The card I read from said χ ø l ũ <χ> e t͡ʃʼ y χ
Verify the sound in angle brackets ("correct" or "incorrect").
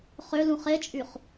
correct